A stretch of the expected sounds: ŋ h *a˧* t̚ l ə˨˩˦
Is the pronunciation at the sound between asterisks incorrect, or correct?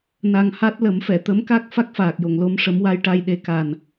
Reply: incorrect